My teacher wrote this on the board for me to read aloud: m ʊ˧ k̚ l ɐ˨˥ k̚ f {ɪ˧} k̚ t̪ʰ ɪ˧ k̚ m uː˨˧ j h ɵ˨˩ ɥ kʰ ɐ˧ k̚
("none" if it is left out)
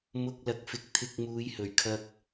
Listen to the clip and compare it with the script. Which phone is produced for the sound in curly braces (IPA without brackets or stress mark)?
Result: ɪ˨˥